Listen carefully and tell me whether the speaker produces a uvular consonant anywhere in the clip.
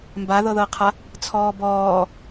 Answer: yes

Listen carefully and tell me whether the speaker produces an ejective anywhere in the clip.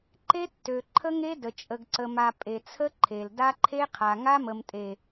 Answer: yes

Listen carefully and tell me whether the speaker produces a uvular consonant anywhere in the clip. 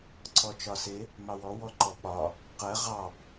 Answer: yes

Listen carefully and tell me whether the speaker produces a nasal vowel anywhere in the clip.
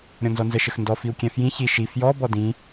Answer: yes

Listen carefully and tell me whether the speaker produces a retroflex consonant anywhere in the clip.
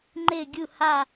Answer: no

